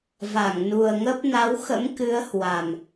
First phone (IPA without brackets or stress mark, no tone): v